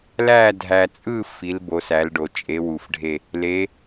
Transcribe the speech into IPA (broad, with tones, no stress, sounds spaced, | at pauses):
l æ˥˧ dʱ æ˧ t͡sʼ ɯ˥˧ f i˧˥ l b o˧˥ s æ˧˥ l ɖ o˧ t͡ʃʼ e˧˥ w u˧ f ɖʱ e˥˧ | l e˧˥